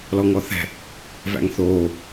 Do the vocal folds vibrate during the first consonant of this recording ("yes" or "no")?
yes